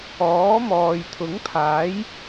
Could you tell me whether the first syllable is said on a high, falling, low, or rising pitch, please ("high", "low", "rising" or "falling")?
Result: rising